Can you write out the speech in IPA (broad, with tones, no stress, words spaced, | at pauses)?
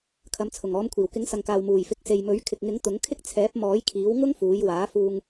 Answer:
kʰɐ˨˧mt͡sʰʊ˨˩ŋɔː˨˧mkʷʰiː˨˩w kɪ˨˥ŋsɐ˨ŋkaː˨w muː˨˩jfɪ˨˥k̚se˨jmɵ˨˥ɥ kʰɪ˨k̚ŋɪ˨˥ŋ t̪ʊ˨˥ŋkʰɪ˥k̚ t͡sʰɛː˨˥p̚mɔː˨˥jkʰiː˨˥w ŋʊ˥ŋfuː˨˧jwaː˨˥ fuː˧ŋ